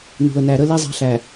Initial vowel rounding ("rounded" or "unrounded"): rounded